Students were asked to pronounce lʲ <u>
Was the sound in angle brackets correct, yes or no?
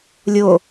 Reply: no